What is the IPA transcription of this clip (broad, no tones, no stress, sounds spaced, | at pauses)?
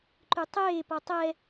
ǃ y tˤ eː p ɔ tˤ ɛ